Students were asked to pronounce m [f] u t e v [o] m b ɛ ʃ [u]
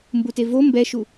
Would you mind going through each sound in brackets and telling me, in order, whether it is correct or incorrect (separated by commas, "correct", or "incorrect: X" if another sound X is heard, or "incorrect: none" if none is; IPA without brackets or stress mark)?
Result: incorrect: b, correct, correct